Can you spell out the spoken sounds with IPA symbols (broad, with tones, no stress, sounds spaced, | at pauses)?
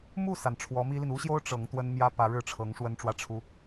m u˥˩ s a˩ n ʈ͡ʂʰ w ɔ˧˥ m i˥ l i˨ n u˥ ɕ j o˥ ʊ̯ ʈ͡ʂ ɤ˧˥ ŋ t̪ w ə˥ n m j ä˥ p ä˧˥ ɻ ɻ̩˥˩ ʈ͡ʂʰ ɤ˧˥ ŋ ʂ w ə˥ n ʈ͡ʂ w ä˥ ʈ͡ʂʰ u˥